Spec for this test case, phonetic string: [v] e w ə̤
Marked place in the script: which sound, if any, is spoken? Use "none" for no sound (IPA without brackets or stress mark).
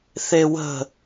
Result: θ